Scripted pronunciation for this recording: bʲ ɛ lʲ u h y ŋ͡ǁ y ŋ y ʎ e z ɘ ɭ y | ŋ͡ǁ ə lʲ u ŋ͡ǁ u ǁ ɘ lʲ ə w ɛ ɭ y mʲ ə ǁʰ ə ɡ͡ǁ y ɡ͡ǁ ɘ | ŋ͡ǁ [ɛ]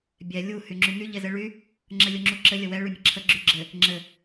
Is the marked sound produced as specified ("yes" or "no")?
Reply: no